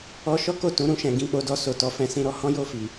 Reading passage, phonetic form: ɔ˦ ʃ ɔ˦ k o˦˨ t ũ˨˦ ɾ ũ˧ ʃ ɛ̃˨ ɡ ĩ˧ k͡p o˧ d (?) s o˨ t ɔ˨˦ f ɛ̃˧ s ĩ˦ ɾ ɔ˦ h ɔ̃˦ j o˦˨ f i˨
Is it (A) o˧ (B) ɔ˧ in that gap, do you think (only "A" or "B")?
B